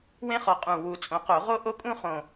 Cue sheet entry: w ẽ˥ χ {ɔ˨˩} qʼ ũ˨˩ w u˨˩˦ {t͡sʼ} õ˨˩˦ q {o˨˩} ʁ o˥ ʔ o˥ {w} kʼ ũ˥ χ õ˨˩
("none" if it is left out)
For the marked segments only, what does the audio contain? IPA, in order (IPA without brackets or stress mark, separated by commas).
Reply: ɔ˨˩, t͡sʼ, o˨˩˦, none